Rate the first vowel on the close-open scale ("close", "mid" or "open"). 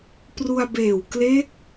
close